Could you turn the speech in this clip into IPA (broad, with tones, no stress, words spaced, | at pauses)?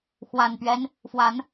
xwa˨˩npɥɛ˦n | fwa˨˦n